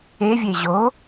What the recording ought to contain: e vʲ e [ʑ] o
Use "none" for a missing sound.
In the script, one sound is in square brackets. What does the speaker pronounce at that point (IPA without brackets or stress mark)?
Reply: ʑ